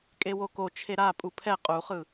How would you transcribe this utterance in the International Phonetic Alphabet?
kʼewoko t͡ʃʰeɾa pʼupʰɛ qʼuχɯ

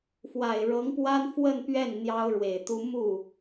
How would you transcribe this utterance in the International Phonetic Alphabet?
fwa˨˩ɪ̯ɻɤ˧˥ŋpwa˥n fwə˥˧npɥɛ˥˩n n̪jɑ˥ʊ̯ɻwe˨˩ɪ̯t̪u˥ mu˥˩

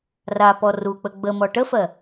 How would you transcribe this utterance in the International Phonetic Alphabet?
rapɔ ruk͡pə ɡ͡bəmɔ ʈəfɜ

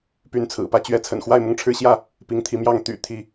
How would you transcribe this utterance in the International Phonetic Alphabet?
py˨˦nt͡sʰɹ̩˨˩pä˥˨t͡ɕɥɛ˦ t͡sʰə̰˨˩nxwa˥˨ɪ̯mʊ˥˨ŋ ʈ͡ʂʰɻ̩˦ɕjä˥˨ | pi˨˦ŋt̪ʰi˨˦mjɑ˥˨ŋ t̪y̰˨˩ t̪ʰi˥˨

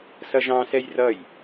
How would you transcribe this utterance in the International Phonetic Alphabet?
sʌʒɑ̃sɛj rʌj

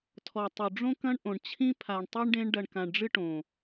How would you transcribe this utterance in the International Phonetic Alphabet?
tʰɔ˨tˤu˨ ɖ͡ʐõ˦kɐ̃˦ɳʔõ˨ɳ t͡ɕʰĩ˦pʰa˨ɳtˤi˦ɳɖẽ˦ɳ ɖɐ˨ɳkã˨ɳɖ͡ʐɨ˦ ʈõ˨

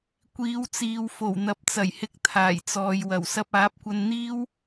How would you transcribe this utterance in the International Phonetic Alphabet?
kʷiː˨˧wt͡siː˨w fo˨˩wn̪ɐ˨p̚t͡sɐ˨˩jhɪ˧k̚ t̪ʰaː˨˩jt͡sɔː˨jwɐ˨˩w sɐ˧p̚aː˨˥p̚kʷɐ˧n n̪iː˥w

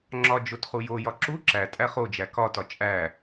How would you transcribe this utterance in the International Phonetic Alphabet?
ŋ͡ǁɒ d͡ʒotχujojɒ ǁu ǁæ tʼæχod͡ʒæ kɒtɒ t͡ʃʼæ

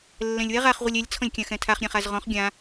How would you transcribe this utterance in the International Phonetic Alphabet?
lːɛ̃lʲwɛ ʁaχ ʁʷɘlʲɛlʲ t͡sʰɔ̃lʲkʲãxɛ̃tʰaχ ɾʲãχazʁɔ̃χ ɡʲã

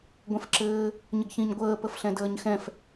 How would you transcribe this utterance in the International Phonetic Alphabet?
ɡʷɛ̃fǁɘː | ɲəɡçĩɲɡʷəː pəfɬɛ̃dəːɲxɛ̃f

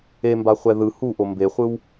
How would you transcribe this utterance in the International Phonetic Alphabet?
embaχʷɛ ðɯ huʔo mbeχʷɯw

